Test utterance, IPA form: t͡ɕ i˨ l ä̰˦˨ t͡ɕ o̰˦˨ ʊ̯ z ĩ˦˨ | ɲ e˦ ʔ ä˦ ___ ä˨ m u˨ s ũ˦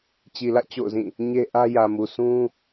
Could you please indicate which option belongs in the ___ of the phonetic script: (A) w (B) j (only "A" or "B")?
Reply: B